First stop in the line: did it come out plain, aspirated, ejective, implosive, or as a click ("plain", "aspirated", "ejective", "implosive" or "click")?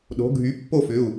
implosive